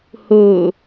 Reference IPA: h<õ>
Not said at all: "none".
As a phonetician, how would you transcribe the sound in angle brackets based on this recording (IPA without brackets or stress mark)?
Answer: o